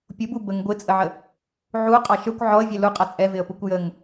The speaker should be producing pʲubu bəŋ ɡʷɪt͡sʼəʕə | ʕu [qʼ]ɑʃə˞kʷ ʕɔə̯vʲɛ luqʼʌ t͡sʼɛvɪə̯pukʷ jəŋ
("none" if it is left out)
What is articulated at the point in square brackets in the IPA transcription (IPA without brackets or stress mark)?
qʼ